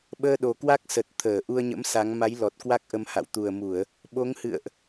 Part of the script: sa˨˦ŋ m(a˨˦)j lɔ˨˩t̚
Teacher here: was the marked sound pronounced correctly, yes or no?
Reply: yes